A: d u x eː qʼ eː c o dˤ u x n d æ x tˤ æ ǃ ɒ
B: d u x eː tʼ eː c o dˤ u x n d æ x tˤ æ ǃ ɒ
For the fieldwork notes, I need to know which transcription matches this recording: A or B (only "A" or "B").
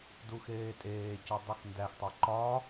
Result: B